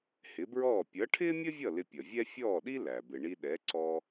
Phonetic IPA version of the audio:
hɪ˩˥bɹɔː˥˩ pʲʌ˩˥ʈʰɪː˥mʲə˥vʲʌ˥˩ lɪ˧pʲʌ˩vʲɛ˥ fʲɔː˥˩ɗi˥ læ˩ bɪ˩ɳi˧ ɗɛ˩˥ǀɔː˧

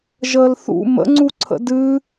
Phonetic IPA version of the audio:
ʒəːlθṵ mə̰ŋ͡ǀuǀʰə̰ dɨ

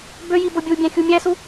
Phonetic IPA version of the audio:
bøji bobʲubʲæ̃ xʲumʲæsu

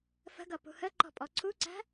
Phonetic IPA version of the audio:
fə̤ɡʌ pṳhəǃɔ̤ pʼɔǀʰuǀæ̤

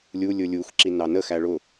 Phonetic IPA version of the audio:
lʲu lʲʊlʲux ǁinɑnə xæɭʊ

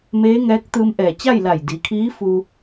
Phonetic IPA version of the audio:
meː˧˥ŋɛː˧˥k̚ t̪ɯː˧mʔɛː˧˩ t͡ɕa˥˨jla˧˩j di˩˧kʰiː˧˥fu˧

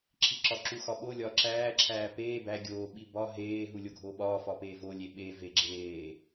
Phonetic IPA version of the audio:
ǁʰiǁɒǁu xɒɓo lʲɒːǁæː ǁʰæːpeː bæ ɡʲoː ɓibɒ ɦeː ɦulʲoɡʱoːɓɒː fɒpeːvo lʲeɓe veɡ͡ǁeː

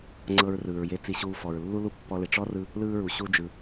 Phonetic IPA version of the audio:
ŋ͡ǀɤ˧ɹrɯː˩ɹje˧ t͡si˧ɕuː˧ fɔ˩ɹlːu˥lu˥ pːɔ˧le˩ ʈ͡ʂɔ˥rɯ˧ | lɯː˥ɹu˩ ɕu˧d͡ʒɯ˩

